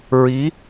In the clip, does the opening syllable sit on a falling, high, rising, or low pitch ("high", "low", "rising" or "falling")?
rising